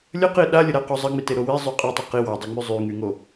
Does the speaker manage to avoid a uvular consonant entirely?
no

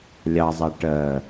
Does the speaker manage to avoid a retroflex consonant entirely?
no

